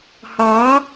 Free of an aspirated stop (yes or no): yes